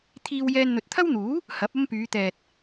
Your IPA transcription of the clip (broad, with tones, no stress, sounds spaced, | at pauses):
t̪ʰ iː˧ w j ɛː˧ n n̪ ɵ˨ t̚ t̪ʰ ɐ˥ w n̪ uː˨˥ | h ɐ˨˥ p̚ ɐ˥ m p yː˨˧ t̪ ɛː˨ t̚